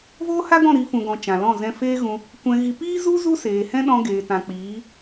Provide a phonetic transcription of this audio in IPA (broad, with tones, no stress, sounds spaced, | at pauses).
v oː˦ h a˦ ɡ ɔ̃˦˨ ɾ i˨˦ f ũ˨ ɡ ɔ̃˨ t͡ʃ ã˨ l ɔ̃˦˨ z ɛ̃˧ f eː˦ ɣ ũ˧ | kʷ ɛ̃˧ ɣ i˧ p iː˦ z u˦ z u˦ s eː˨ h ɛ̃˦ ɗ ɔ̃˧ ɡ eː˨ t ã˨ k͡p iː˨˦